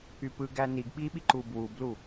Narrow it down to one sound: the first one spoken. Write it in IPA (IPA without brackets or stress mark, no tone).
y